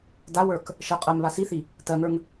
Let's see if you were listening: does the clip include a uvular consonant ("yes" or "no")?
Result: yes